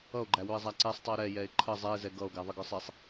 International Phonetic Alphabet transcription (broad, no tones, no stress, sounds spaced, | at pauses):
ʌ o̯ ɡ͡ǃ æ w ʊ e̯ zˤ æ ǀ ɛ sˤ tˤ i o̯ ɾ ɛ j ɛ e̯ ǃʰ ə zˤ ɛ e̯ z ɛ ɡ ʌ o̯ ɡ æ ðˤ ɪ ɡ ə˞ sˤ i sˤ